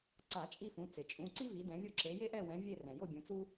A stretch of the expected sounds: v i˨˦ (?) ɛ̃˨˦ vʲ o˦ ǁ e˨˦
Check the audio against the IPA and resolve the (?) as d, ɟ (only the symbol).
d